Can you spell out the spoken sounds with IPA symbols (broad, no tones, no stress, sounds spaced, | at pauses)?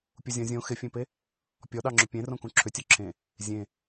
pʲ u zʲ ɔ̃ zʲ õ x ɪ fʲ ẽ p e | pʲ ɔ ɗ ɑ ŋ͡ǁ ʏ pʲ ẽ r õ k ũ ǁʰ ʏ tʲ o ǁʰ ẽ | zʲ ẽ